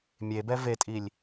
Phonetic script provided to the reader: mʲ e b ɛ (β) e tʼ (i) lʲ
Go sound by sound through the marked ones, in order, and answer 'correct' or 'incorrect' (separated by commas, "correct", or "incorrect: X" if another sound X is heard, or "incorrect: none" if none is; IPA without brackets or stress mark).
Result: incorrect: v, correct